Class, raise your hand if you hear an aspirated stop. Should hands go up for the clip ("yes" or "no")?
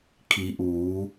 yes